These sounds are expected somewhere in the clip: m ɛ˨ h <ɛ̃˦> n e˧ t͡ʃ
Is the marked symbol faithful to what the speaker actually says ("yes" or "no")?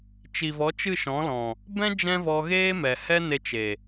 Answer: no